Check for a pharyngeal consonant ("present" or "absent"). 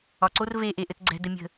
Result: absent